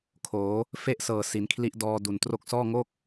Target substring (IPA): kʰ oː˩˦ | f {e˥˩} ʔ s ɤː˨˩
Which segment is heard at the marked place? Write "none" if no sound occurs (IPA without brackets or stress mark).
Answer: e˥˩